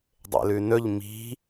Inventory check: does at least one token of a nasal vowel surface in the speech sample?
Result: no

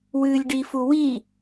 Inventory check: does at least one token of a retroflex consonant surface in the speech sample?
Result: yes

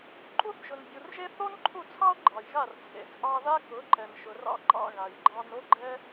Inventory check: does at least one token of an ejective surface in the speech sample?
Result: yes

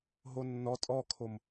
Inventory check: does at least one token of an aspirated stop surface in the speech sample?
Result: yes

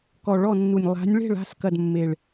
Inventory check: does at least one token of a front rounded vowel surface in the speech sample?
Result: no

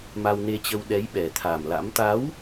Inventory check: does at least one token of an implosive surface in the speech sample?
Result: yes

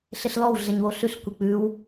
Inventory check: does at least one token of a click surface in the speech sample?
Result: no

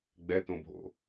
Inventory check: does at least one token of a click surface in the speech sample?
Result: no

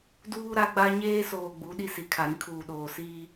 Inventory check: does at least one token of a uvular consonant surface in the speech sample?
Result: no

